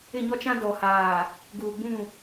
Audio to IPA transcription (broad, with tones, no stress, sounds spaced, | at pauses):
ɪ˦˨ ɲ ɔ˦ t͡ʃ ã˦ d ɔ˨ h aː˨ | ɡ uː˨ ɡ͡b ũ˦˨